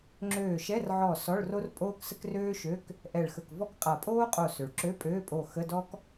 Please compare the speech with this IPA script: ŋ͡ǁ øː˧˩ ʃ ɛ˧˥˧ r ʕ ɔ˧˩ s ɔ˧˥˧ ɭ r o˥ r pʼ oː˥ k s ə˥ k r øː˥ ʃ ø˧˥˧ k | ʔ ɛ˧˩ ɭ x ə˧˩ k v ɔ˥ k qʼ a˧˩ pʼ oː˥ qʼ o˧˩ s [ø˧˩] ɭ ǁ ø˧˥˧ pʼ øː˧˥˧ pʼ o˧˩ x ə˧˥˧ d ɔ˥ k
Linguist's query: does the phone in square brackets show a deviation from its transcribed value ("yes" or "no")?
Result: yes